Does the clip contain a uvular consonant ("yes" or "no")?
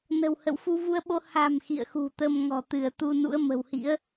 no